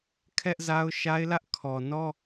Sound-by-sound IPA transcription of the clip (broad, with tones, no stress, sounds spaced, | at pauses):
kʰ ɛ˦ ʔ z a˦ ʊ̯ ʃ a˦ ɪ̯ l ä˦ ʔ kʰ ɔ˨ n ɔ˦